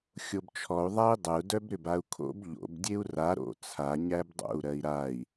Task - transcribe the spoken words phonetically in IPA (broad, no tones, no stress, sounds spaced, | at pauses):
xʲ o b t͡ʃʰ ɔ u̯ ðˤ æ i̯ dˤ ə u̯ d œ b ɾ ʏ b a u̯ kʰ o̰ b ʎ o̰ b dʲ e u̯ r a ɾ o̰ t͡sʰ a ɲ æ b dˤ o̰ u̯ ɾ ɜ i̯ ɾ a i̯